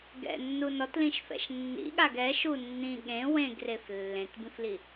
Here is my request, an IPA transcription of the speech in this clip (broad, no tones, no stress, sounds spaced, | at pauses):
ɡ ɛ̰ nː u n ɔ t l ĩ ʃ f ɛ̰ ʃ nː ḭ ɠ a ɡ ɛ ʃ u nː ĩ ɠ ẽ w ẽ ɡ r e f lː ẽ t b ĩ f l i